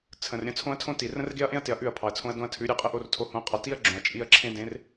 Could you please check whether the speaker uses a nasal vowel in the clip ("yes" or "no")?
yes